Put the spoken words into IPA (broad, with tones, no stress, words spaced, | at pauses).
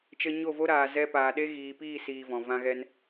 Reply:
t͡ʃə˧ɲo˦˨vo˦ ɾaː˨zɛ˧ paː˨ɗe˦ ɣiː˨piː˦˨siː˨ vɔ̃˨vã˦ɣɛ˦n